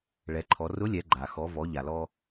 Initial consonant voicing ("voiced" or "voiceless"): voiced